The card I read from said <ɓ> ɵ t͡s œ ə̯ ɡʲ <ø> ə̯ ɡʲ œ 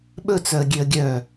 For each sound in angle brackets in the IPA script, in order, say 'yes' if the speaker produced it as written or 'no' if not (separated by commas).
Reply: yes, yes